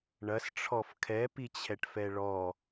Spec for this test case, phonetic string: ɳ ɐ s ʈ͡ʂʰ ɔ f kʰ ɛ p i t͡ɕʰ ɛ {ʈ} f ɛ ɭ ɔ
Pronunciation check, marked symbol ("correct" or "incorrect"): correct